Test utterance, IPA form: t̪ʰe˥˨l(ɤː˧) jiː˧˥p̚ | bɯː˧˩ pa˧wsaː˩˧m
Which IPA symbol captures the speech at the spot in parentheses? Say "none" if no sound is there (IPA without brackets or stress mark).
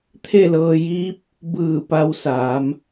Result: ɤː˧